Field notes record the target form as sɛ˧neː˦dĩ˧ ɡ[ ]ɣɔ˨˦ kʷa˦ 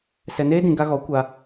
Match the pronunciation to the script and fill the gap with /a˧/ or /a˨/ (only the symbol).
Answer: a˧